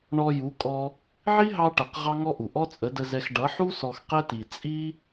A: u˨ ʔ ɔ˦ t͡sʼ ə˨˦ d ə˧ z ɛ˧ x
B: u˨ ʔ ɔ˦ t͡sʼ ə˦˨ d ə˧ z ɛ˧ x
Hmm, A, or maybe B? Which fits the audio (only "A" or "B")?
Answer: A